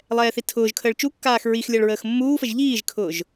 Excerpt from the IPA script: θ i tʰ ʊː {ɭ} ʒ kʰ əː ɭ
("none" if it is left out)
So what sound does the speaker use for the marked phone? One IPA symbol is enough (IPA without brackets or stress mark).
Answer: none